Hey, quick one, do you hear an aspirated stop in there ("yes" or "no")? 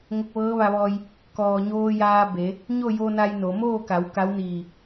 no